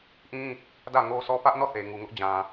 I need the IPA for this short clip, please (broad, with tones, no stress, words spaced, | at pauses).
ʔĩ˦ | dä˦˨ŋo˦sʰɔ˦ pä˦ʔnɔ˦˨ θe˨ŋu˨ŋʊ˦ʔ d͡ʑã˨